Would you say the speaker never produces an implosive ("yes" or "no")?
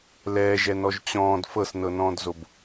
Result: yes